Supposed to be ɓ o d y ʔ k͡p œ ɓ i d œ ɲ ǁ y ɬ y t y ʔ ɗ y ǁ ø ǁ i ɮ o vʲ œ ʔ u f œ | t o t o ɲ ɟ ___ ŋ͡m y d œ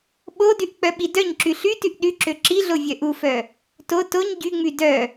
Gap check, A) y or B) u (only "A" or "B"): A